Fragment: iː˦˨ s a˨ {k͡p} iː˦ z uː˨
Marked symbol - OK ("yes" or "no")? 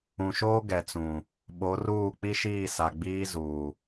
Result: no